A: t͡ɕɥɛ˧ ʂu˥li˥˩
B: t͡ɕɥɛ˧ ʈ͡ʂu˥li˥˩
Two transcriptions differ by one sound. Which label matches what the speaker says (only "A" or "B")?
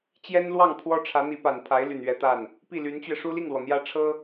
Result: A